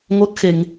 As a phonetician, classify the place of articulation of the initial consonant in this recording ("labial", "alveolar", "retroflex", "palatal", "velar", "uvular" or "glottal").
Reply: velar